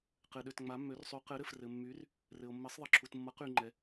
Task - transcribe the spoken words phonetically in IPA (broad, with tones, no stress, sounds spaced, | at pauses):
q ɘ˨ ɗ ø˨ t ŋ͡m a˨˦ mː ø˨˦ r sˤ y˨˦ q ɘ˨˦ ɾ ɘ˨ f r ɘ˨ mː y˨˦ r | r ɘ˨ o̯ mː ɘ˨˦ sˤ ðˤ ɘ˨ ǁʰ u˨ t mː ʌ˨˦ q y˨ ŋ͡ǃ ɛ˨